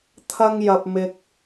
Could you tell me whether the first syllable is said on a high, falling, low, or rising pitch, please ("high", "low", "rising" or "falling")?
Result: high